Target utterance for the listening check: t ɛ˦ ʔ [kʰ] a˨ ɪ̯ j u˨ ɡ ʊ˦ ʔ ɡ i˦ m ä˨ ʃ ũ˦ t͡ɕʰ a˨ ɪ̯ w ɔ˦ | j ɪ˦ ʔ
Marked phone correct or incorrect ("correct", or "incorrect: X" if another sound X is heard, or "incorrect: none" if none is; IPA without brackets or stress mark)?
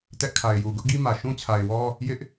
correct